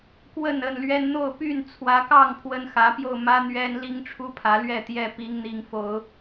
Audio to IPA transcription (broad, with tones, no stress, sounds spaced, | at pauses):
k w ə˥˨ n ə˥˨ n l ɥ ɛ˦ n n̪ o˥˨ ʊ̯ p y˥˨ n t͡sʰ w ä˨˦ k ɑ˥˨ ŋ pʰ w ə˦ n x ä˨˦ p j o˥˨ ʊ̯ m ä˦ n̪ ɥ ɛ˦ n l i˦ ŋ ʈ͡ʂʰ u˦ pʰ ä˨˦ l ɥ ɛ˥˨ t̪ j ɛ˥˨ p i˨˦ ŋ n̪ i˨˦ ŋ f o˨˦ ʊ̯